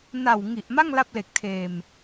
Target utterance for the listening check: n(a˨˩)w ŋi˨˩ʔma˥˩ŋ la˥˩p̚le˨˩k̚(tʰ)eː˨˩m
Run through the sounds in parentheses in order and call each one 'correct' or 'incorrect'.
correct, correct

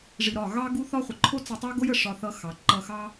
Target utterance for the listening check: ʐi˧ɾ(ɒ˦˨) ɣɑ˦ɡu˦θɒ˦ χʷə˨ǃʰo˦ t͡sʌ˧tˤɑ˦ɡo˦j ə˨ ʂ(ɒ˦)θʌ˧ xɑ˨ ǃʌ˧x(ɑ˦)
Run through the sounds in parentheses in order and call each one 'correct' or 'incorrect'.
correct, incorrect, correct

